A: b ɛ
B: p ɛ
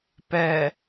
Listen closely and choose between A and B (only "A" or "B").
B